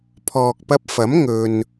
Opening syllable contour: low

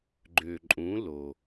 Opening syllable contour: low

